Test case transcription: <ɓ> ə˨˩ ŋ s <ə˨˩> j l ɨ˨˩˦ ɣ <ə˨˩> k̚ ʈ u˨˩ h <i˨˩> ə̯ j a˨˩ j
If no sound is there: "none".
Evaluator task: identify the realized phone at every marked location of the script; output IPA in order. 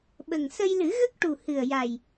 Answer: ɓ, ə˧, ə˦˥, ɨ˨˩

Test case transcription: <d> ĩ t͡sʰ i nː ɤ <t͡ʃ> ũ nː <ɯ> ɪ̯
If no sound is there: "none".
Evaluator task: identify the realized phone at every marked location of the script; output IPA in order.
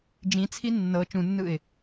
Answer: d͡ʒ, t͡ʃ, ɯ

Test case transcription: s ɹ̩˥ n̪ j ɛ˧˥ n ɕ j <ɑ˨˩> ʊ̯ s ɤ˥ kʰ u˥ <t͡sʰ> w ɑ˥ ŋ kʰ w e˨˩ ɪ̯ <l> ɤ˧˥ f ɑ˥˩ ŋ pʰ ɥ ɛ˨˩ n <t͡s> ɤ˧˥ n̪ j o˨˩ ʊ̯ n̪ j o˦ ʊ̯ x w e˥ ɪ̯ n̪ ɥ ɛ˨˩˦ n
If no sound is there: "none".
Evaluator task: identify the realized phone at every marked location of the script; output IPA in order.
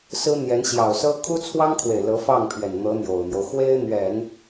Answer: ɑ˨˩, t͡sʰ, l, n̪

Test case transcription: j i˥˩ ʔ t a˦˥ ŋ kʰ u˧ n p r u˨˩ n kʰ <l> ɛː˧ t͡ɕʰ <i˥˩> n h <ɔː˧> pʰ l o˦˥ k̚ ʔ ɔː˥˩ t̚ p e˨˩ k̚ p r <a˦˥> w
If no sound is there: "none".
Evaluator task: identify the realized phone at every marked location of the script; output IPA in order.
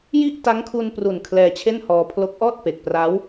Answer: l, e˥˩, ɔː˧, a˦˥

